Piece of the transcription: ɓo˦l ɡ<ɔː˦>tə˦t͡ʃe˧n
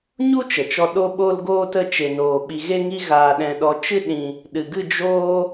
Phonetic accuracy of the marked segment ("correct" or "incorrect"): incorrect